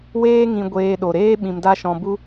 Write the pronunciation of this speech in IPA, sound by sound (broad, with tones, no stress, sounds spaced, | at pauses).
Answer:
w eː˦ ŋ ĩ˧ ɡʷ eː˧ ɗ o˨ ɾ eː˦ ɓ ĩ˧ m d a˦ ʃ ɔ̃˧ b u˦